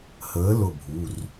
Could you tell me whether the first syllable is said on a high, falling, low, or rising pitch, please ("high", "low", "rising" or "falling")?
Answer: rising